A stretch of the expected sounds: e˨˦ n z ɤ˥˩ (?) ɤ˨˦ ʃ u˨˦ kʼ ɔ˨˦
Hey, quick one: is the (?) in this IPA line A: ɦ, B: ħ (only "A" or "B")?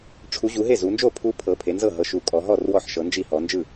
A